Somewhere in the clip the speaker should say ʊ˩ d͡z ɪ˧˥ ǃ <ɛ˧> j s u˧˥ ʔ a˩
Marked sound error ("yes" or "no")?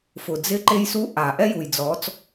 yes